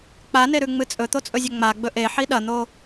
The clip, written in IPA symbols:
k͡p a n e ɾ ʉ ŋ͡m ɨ t͡sʼ ɵ t̪ o t͡sʼ ɵ zʲ ɐ ŋ͡m a ɡ͡b ɵ ʔ e ħ i ɗ ɐ n̪ o

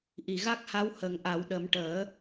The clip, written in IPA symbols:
ʔ i˨˩˨ ɣ a˦˥ k̚ h a˧˥ w h ə˨˩˦ ŋ ʔ a˨˩˦ w ɗ ə˨˩˦ m ʈ əː˨˩˦

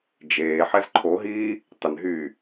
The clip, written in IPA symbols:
d͡ʒ eː ħ ɛ z ǃʰ o ɦ iː | tˤ ɪ n ɦ yː

